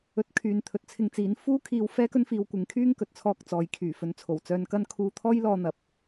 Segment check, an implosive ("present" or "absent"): absent